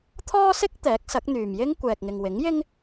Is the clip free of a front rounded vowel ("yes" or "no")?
no